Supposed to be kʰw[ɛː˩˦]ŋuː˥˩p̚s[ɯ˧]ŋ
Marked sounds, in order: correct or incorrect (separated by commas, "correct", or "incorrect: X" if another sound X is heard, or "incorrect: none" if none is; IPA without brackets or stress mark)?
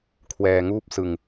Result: incorrect: ɛː˧, correct